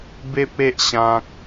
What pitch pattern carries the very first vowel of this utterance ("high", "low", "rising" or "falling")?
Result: high